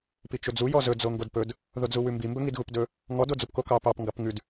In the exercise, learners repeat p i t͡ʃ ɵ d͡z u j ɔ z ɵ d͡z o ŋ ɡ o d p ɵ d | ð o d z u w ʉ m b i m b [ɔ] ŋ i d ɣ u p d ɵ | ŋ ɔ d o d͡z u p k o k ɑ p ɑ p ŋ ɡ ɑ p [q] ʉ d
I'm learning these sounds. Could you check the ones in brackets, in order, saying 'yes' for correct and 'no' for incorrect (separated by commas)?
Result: no, no